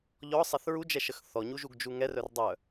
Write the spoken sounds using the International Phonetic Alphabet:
ʎɔ sˤɛθɹu d͡ʒɛʃəxθɔ ɲuʒuɡd͡ʒuŋɛ rœrdˤœ

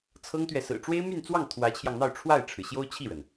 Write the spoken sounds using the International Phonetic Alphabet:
t͡sʰɤ˥ŋt̪ɥɛ˨ sɹ̩˨˩ʈ͡ʂwe˥ɪ̯my˥˧nt͡swɑ˥˩ŋ t̪ʰwä˧˥t͡ɕʰjɑ˧ŋn̪ɑ˥˧ʊ̯ ʈ͡ʂʰwa˥˩ɪ̯ʈ͡ʂʰɻ̩˩ ɕjo˥ʊ̯t͡ɕʰi˥˩ɻə˩n

